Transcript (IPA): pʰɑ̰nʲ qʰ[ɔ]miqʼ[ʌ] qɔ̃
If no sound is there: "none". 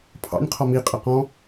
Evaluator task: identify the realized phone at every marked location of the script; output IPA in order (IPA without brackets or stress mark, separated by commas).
ɔ, ə